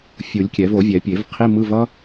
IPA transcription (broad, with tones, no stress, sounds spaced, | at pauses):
fʲ u˨˩˦ lʲ kʲ ɛ˨˩˦ v o˨˩˦ vʲ ɛ˨˩˦ pʲ e˨˩˦ v qʰ i˧˥˧ m ɯ˧˥˧ v ʌ˥